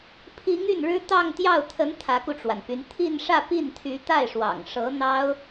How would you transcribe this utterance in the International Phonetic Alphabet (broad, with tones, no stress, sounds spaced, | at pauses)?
pʰ i˧˥ ŋ y˥˩ n ɻ ɻ̩˥ t̪ ɑ˥˧ ŋ t̪ j ɑ˥˩ ʊ̯ t̪ʰ ə˧˥ n t̪ʰ ä˧˥ k u˧ ʈ͡ʂ w a˩ n p y˧˥ n t̪ʰ i˥˧ n ʂ ä˥˧ p i˥˩ n t̪ʰ y˧˥ t̪ a˥˩ ɪ̯ ʂ w ɑ̰˨˩ ŋ ʂ ɤ˧˥ n̪ ɑ˥ ʊ̯